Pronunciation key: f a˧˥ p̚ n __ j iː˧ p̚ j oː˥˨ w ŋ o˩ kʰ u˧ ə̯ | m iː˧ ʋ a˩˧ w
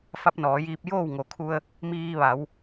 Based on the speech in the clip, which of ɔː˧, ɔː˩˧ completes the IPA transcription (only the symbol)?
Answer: ɔː˩˧